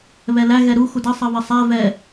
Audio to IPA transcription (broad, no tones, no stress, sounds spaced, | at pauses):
β ɛ l æ ɣ ɛ ɾ u x u d ʌ sˤ ʌ β ə sˤ æ v ɛ